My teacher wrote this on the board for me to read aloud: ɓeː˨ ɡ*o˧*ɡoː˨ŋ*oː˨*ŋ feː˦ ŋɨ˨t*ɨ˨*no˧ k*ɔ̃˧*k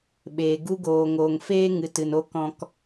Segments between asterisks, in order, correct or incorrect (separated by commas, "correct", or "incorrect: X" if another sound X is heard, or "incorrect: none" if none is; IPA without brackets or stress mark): incorrect: u˧, correct, correct, correct